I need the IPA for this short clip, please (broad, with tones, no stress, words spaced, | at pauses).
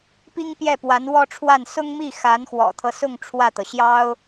pi˥ŋpjɛ˥˩pwa˧˥n wɔ˥˧ʈ͡ʂʰwa˥˩n sʊ˥ŋmi˥˩ xa˧˥nxwɔ̰˨˩t̪ʰɤ˦sʊ˥˧ŋ ʈ͡ʂʰwä˥˩t̪ɤ˩ ɕjɑ˥ʊ̯